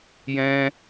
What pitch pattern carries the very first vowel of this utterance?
high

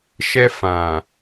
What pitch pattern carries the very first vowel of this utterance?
high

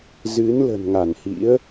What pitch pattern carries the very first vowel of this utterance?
rising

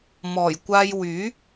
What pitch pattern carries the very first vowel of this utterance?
low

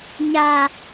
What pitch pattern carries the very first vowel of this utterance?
low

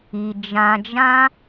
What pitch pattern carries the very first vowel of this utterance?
low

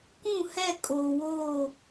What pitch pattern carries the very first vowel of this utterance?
falling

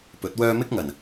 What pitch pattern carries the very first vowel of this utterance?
rising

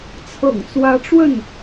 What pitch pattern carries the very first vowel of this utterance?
low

